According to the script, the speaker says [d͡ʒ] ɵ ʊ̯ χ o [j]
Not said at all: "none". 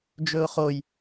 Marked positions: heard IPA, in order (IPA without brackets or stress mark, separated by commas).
d͡ʒ, j